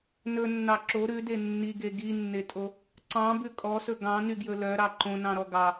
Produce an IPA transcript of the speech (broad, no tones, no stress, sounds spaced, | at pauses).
n ɵ nː ɑ ǁ o ɾ ʉ d e nː i ɡ e ɡ i nː e tʼ o | ǀ ɑ̃ b ʉ kʼ ɔ s ɵ ɡ ɑ̃ n y ɡ j ɵ l œ ɾ ɑ ǃ õ n ɑ̃ ɾ ɔ ɡ ɑ